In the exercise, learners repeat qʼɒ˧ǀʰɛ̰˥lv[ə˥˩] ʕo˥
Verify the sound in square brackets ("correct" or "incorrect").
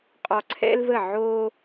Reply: correct